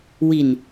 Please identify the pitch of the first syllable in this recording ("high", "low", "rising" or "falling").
low